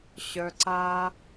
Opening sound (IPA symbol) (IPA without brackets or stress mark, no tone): ɕ